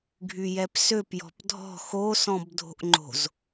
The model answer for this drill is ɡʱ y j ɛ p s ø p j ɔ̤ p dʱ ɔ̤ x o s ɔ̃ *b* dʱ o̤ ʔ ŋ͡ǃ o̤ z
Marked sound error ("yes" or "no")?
no